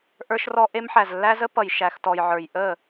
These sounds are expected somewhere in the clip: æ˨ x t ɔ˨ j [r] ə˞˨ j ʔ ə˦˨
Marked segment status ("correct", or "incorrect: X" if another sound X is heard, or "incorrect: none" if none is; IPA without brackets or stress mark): incorrect: ʕ